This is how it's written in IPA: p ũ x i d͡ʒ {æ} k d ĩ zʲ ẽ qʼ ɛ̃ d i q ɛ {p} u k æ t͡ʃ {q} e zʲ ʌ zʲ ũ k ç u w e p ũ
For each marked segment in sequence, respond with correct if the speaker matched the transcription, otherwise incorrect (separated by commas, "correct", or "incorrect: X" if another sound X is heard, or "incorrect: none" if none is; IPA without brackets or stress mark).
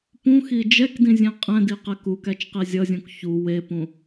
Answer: incorrect: ɛ, incorrect: k, correct